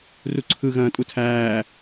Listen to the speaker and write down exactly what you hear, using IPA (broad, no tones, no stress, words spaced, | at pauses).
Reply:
ruǀʰɯ ɣɐ̃ːtʼutʰæː